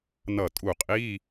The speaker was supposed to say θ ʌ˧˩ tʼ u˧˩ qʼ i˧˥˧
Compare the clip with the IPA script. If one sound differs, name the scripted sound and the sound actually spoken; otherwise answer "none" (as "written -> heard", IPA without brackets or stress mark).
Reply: θ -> n